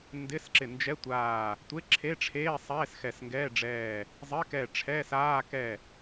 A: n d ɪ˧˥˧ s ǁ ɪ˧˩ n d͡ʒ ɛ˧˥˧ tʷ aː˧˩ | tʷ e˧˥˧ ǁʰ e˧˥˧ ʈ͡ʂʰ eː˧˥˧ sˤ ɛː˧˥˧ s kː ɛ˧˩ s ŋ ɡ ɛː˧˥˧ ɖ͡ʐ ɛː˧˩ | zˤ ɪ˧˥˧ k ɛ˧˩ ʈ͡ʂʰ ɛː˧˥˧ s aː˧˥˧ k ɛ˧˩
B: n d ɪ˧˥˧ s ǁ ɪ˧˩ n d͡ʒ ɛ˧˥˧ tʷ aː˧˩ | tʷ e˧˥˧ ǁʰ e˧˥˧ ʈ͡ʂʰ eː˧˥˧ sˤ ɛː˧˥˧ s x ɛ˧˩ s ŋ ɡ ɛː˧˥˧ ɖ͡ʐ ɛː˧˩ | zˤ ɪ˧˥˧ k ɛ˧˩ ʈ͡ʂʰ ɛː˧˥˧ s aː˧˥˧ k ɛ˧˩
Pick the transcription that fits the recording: B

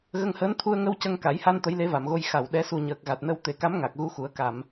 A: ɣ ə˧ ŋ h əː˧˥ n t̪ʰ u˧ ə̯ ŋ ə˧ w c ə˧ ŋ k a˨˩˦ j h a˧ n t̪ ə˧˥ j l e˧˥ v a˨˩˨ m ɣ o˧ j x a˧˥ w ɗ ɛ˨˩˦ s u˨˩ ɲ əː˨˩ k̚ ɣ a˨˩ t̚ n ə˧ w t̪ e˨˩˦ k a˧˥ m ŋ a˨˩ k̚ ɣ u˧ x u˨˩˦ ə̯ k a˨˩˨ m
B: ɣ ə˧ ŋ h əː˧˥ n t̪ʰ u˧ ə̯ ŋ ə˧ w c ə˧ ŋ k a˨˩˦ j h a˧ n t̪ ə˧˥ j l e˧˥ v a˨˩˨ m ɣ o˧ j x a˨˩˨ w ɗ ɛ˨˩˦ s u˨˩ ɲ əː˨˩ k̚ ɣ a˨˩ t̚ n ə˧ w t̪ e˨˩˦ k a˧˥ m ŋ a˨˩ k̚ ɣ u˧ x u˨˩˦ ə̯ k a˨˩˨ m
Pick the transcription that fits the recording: B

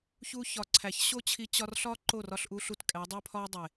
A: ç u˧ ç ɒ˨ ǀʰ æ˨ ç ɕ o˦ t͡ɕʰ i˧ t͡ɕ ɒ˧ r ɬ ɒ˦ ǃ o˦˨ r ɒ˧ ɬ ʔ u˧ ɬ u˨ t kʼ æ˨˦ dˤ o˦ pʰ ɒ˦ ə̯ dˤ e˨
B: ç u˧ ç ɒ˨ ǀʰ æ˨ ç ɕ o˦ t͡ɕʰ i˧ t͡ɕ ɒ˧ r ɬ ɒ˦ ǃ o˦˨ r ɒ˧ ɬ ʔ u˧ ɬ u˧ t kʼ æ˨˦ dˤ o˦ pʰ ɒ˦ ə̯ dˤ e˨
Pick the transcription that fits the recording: B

